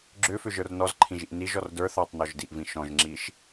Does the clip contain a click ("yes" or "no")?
yes